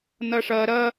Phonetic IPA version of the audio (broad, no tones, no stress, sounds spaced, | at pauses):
n̪ ʌ ʂ ʌ ɾ ʌ